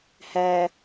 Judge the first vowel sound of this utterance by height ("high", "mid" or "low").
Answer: low